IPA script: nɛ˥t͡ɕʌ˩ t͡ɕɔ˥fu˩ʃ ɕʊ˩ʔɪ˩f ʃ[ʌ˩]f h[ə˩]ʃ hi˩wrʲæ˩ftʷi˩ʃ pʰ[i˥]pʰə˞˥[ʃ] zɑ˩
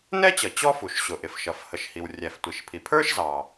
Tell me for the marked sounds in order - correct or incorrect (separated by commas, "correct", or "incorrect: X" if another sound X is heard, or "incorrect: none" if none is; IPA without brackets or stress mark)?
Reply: correct, correct, incorrect: i˩, correct